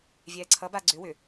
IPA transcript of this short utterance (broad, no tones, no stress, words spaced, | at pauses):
vʲɛːǀʰʌ baɡ͡ǀʏ wʏ